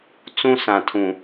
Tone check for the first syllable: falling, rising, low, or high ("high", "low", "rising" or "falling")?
high